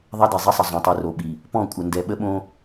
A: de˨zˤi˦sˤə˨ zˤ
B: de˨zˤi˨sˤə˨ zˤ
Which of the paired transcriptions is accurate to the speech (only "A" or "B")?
A